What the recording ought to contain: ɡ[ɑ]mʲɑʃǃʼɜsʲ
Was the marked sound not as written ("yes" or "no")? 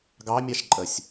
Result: no